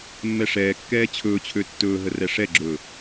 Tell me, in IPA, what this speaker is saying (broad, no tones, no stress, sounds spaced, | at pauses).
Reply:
mː ɛ ʂ ɛː kː ɛː t͡ɕʰ ɵː t͡ɕʰ ø tː ɵː ɦ ə r ɛ ʂ ɛ ɡ͡ǁ ɵː